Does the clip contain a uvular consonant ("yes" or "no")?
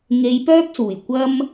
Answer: no